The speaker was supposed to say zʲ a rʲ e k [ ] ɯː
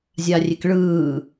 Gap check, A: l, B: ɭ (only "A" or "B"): B